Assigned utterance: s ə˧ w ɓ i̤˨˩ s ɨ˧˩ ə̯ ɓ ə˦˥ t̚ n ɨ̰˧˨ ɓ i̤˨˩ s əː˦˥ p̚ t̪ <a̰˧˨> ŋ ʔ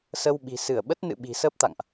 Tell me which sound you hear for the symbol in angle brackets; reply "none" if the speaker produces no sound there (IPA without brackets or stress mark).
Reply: a̰˧˨